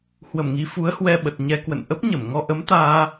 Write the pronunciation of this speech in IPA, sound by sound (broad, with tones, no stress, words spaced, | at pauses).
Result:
hwə˧˩mŋi˨˦fu˨˦ə̯hwɛ˧ ɓə˨˩t̚ɲɛ˧kwə̰˧˨n ʔə˦˥p̚ɲə˧˩mŋɔ˧ ʔə˨˦mt̪aː˧